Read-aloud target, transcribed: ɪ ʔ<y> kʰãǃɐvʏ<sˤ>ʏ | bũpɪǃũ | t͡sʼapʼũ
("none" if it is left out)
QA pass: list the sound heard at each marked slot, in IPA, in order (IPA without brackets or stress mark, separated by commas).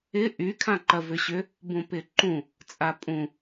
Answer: y, ɕ